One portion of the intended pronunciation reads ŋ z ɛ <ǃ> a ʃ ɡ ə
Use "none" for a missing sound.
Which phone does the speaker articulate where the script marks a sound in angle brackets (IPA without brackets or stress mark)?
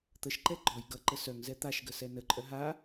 t̪